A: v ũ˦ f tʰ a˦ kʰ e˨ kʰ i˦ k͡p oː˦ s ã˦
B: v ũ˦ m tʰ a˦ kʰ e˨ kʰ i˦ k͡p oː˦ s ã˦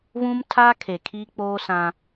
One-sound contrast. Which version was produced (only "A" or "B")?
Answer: B